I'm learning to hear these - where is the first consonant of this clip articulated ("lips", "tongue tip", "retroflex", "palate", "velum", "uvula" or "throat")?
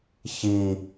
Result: palate